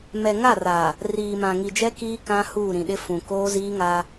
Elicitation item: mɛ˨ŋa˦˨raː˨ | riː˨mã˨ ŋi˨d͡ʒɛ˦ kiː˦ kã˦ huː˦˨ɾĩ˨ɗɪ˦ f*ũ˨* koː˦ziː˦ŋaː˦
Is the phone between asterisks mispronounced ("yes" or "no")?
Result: no